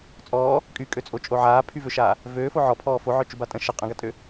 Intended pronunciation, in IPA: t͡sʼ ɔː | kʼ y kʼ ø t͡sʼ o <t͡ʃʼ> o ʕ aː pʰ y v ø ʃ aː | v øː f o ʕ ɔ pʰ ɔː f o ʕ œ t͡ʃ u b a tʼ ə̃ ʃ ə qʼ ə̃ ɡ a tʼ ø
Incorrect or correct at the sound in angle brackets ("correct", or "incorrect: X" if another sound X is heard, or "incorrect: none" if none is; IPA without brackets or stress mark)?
correct